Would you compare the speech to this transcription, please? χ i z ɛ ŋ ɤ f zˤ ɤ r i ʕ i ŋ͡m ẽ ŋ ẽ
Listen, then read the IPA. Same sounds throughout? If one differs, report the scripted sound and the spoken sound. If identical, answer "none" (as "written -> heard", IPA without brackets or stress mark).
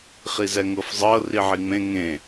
none